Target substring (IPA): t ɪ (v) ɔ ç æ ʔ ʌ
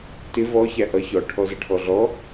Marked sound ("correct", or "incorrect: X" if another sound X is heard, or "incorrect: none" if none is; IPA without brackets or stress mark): correct